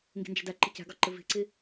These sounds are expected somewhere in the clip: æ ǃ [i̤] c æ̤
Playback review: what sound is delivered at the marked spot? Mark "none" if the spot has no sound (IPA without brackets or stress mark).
i̤